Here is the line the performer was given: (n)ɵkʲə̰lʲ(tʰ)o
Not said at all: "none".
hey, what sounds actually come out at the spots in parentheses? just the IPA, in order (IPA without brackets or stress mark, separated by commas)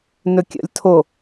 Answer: n, tʰ